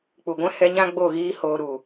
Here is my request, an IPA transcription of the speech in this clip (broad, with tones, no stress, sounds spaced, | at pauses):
k͡p u˨ ɡʷ ɛ̃˦ h ɛ˧ ɲ ã˦ ɡ͡b o˦˨ ɣ iː˦ h oː˧ ɾ u˨